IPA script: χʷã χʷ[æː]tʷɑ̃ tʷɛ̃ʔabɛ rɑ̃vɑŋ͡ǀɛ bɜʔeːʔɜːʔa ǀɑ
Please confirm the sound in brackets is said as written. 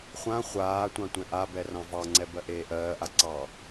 no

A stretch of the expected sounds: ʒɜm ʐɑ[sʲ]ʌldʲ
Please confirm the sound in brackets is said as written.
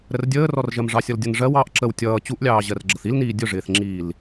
yes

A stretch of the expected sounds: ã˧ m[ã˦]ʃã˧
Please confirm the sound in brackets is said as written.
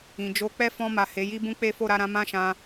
yes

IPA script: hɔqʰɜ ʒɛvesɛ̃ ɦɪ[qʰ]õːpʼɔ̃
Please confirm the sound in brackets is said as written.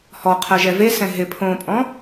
no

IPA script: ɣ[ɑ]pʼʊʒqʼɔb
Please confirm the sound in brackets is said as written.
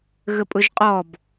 no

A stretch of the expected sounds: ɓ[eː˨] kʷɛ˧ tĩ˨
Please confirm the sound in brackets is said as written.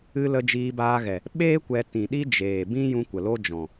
no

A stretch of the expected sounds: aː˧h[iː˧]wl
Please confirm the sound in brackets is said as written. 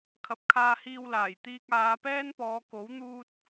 yes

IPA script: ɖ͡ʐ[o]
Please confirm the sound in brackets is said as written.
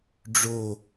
yes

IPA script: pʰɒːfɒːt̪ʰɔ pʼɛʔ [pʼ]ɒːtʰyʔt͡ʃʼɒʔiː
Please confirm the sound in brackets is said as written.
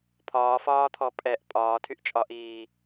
yes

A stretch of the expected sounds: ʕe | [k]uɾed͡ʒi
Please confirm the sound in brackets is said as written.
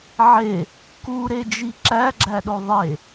yes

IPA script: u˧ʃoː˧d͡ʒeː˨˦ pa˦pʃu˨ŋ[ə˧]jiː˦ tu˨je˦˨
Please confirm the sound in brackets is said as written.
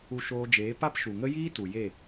no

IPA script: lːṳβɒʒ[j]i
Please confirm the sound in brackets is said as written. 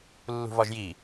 yes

